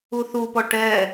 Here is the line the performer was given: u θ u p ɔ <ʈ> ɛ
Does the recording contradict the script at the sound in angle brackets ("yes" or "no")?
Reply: no